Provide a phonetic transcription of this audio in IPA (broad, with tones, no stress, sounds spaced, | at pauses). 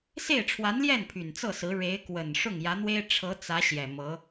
s e˥˩ ɪ̯ ʈ͡ʂʰ w a˧˥ n l j ɛ˥˩ n pʰ y˨˩ n t͡s ɤ˥˩ s ɹ̩˧˥ ɻ e˧˥ ɪ̯ k w ə˨˩ n ʂ ʊ˥˩ ŋ j ä˧˥ n̪ w e˥ ɪ̯ ʈ͡ʂʰ ɤ˧˥ t͡s ä˧˥ ɕ j ɛ˨˩ m ɤ˧˥